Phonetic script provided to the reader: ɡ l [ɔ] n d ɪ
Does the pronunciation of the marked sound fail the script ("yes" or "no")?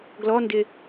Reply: no